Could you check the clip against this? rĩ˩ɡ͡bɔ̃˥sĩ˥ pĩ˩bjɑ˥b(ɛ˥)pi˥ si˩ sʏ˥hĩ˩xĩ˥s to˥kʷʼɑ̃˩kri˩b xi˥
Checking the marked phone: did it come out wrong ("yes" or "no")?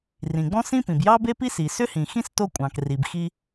yes